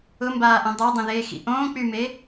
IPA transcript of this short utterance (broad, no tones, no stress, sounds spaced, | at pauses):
ʊ m b aː ʔ ɛ̃ dˤ ɐ dˤ ɛ̃ ð eː x ḭ ʔ õː k͡p y m e